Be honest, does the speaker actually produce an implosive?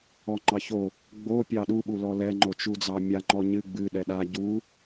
yes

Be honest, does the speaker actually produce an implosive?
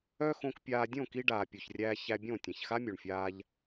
no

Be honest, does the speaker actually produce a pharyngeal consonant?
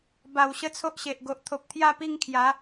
no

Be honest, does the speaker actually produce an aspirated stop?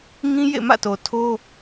yes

